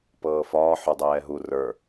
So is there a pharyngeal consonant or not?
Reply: yes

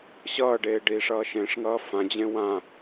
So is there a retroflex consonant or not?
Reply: yes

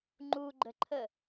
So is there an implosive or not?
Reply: no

